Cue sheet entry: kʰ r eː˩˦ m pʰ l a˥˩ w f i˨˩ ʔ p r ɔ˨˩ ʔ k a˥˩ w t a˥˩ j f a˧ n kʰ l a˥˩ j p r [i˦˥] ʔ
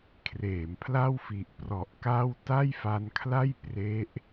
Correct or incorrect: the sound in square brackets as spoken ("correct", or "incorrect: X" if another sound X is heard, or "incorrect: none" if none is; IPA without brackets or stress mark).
incorrect: e˦˥